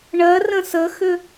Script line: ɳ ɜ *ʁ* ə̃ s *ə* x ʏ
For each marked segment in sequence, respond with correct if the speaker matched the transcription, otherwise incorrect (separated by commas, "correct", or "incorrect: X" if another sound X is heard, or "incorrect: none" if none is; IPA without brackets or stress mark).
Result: incorrect: r, correct